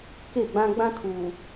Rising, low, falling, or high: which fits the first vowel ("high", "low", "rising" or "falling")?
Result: falling